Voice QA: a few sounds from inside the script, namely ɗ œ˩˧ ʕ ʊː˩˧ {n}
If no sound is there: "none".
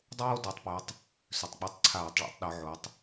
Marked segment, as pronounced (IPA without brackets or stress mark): tˤ